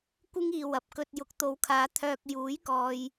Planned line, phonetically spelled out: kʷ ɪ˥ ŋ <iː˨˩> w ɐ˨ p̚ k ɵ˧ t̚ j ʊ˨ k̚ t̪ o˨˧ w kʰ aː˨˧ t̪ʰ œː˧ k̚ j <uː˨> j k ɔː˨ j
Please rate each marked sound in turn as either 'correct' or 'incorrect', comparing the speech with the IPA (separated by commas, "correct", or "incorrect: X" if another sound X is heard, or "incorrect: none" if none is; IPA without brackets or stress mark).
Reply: incorrect: iː˨, incorrect: uː˨˥